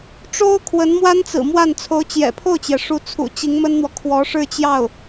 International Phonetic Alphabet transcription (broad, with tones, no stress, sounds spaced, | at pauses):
ʈ͡ʂ o˥ ʊ̯ kʰ w ə˧˥ n m w a˥ n t͡s ɹ̩˨˩ m w a˥˩ n t͡sʰ o˧˥ ʊ̯ t͡ɕ j ɛ̰˨˩ pʰ o˥˩ ʊ̯ t͡ɕ j ɛ˩ ʂ u˧˥ t͡sʰ ṵ˨˩ t͡ɕ i˧˥ ŋ m ə˥ n n̪ w ɔ˨ kʰ w ɔ˧˥ ʂ ɻ̩˥˧ t͡ɕ j ɑ˥˩ ʊ̯